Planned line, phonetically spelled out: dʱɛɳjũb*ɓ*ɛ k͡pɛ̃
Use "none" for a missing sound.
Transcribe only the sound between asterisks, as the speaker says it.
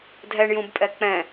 pʼ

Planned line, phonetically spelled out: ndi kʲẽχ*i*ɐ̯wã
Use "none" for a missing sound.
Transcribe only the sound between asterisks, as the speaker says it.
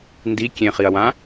i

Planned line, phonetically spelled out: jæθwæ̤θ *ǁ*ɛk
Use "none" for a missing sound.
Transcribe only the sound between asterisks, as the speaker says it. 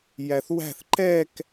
ǃ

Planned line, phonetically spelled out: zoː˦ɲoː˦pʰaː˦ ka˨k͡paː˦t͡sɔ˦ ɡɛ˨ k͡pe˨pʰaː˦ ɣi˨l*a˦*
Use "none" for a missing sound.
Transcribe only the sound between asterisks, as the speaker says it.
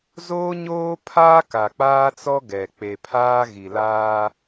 aː˦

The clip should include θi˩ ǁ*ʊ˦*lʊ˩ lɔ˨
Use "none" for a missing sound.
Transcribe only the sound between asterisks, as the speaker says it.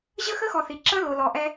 ə˦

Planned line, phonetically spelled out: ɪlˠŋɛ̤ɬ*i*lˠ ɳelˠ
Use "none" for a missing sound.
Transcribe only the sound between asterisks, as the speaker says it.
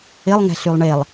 y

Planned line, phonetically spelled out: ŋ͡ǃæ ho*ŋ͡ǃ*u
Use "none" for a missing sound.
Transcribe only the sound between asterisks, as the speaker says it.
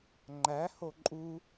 ǃʼ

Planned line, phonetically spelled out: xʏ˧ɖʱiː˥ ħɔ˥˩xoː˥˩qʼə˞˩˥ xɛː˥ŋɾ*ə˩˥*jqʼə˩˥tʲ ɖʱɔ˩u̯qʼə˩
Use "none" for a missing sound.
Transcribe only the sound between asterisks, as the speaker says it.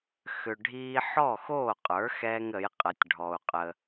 ə˩˥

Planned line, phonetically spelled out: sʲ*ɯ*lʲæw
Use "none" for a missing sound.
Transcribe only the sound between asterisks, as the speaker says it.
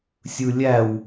ɯ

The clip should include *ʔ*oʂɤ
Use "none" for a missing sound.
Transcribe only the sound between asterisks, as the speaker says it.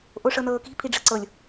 ʔ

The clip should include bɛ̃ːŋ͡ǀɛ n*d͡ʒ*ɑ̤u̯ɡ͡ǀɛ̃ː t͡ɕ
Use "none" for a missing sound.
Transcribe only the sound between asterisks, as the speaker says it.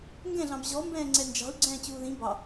d͡ʒ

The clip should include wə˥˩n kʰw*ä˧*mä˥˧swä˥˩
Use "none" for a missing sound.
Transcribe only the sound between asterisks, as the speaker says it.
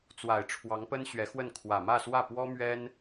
ä˨˩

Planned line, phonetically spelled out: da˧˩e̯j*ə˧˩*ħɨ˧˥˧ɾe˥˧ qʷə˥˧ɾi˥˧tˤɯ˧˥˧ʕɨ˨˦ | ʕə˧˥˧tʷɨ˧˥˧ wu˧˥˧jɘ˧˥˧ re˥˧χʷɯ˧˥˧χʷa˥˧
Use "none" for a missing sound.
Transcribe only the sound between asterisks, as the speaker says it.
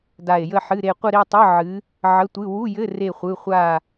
ə˥˧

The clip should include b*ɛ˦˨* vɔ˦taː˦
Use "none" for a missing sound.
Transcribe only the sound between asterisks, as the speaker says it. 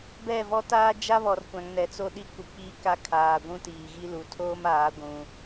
ɛ˦˨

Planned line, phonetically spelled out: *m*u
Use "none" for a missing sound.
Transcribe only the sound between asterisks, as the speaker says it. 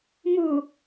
m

